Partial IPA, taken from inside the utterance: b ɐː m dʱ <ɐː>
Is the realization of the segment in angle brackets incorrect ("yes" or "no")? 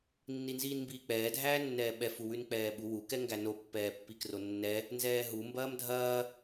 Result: no